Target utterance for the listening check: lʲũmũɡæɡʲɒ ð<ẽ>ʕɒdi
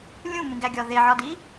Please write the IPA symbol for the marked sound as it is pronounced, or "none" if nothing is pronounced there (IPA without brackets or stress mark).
e